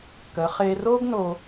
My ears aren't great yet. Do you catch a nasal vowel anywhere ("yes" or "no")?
no